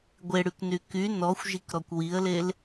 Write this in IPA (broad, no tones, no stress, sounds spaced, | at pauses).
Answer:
ɡʷ e ɽ y k n y k y n ɔ xʷ ʒ i k ɾ ɔ kʷ w i ə̯ l e l